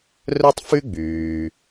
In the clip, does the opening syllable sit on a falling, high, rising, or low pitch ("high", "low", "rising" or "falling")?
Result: high